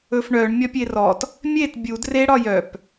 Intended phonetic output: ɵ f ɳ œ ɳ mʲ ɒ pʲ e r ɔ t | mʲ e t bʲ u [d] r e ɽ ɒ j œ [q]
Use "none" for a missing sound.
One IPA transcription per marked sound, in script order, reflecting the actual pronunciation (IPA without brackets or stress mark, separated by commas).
d, p